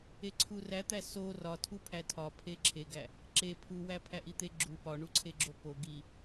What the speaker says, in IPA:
eǀʰuræt̪æ so rɒtʰu pʰætʰɒ pʰeǁʰeɡæ | ǁe pʰuwæ pʰæʔit̪e ɡ͡ǁu pɒɳuǀʰeɡ͡ǁo po ɡi

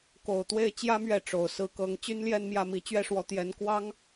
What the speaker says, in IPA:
ko˨˩ʊ̯t̪we˥˩ɪ̯ t͡ɕjä˥ mɥɛ˥˩ʈ͡ʂo˨˩ʊ̯ sɹ̩˧˥kɤ˧˥ŋ t͡ɕy˥nljɛ˥˧nmjä˥˩mi˧˥ t͡ɕɥɛ˥˩ʂwɔ˧˥ t̪jɛ˧˥n kwɑ˥ŋ

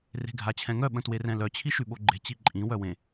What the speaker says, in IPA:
re̤ɡʱat͡ɕʰɛ̃ŋœ ɓə̃twerɛ̃lœ t͡ɕʰiʃyɓoɡ͡ǃe̤ t͡ɕiǃʼĩ wœwẽ

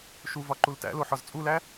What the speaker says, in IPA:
ʃuvɒ ǃultæ̰lo ħɒzt͡sʼulæ

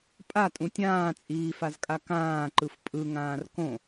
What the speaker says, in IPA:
pʼatʼũ tʲãːt͡sʼiːfazkʼa kãːǃɯf pʼɯŋãːr kõ

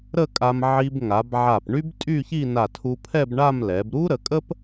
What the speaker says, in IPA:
ɾə˥˧kʼa˧m ʕi˧b ŋa˩˧b ʕa˧˩pɳy˥b tʼy˥˧çi˥˧ na˧˩tʰu˧pʰɛ˥˧bɳa˥˧m lɛ˩˧bɾu˥ ɾə˩˧kʼə˥p

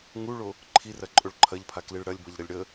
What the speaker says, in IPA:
ŋuɭo | ǃʰirɐǃʼoɭ ǃʰɐʎpʰakliɭ ɽɐlʲbʌʎɾʌlʲ ɽə

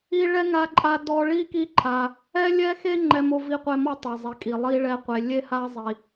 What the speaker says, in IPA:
i˥ ɭɛ˥ŋa˦ǃʼa˦ dɔ˦ ɭi˥ki˦ǃʰa˨ | ɛ˥lʲɛ˥xe˥ ŋ͡ǃɛ˦mo˦ vi˥qʷɛ˦mɔ˥ tˤa˨zˤe˨ kʼi˩ lˠi˥ɭɛ˦qʷe˨ lʲe˥ha˥ zˤi˨

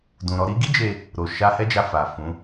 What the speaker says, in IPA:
dũ˨ɾɔ˧ɾi˦ ɡi˦d͡ʒe˧ | ɾo˨ʃa˧hɛ˦d͡ʒa˧ fa˨ fũ˨˦

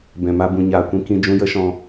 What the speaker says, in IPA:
bɛ̃˨ma˧ bũ˧ɲaː˧kʷĩ˦ kĩ˧d͡ʒũ˧jə˦ ʃɔ̃˧

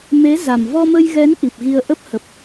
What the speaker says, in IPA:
me˨˦za˨˩m vɔ˧mə˧jɣɛ˨˦n ʔi˨˩p̚ɣi˧ə̯ʔə˦˥p̚hə˨˩p̚

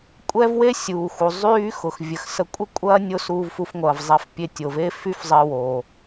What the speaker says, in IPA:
kʷʼɛ˥vwe˥ sʲuː˩xu˩ zˤyː˥xʊ˩x vʲə˩xsə˧ kʷʼə˥kʷʼɐː˥ nʲo˥suː˧vfu˧fŋʷɐː˩v zˤɛ˧fpʲe˧ tʲo˩ve˥ fy˥fzˤɪː˧wo˩

